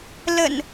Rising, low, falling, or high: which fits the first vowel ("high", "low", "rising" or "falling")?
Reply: low